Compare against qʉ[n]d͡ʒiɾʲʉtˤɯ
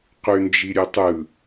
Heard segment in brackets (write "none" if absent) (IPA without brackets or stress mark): n